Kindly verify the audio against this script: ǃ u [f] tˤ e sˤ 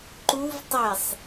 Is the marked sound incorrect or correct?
incorrect